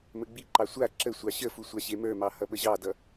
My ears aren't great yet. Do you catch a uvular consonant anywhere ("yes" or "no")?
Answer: no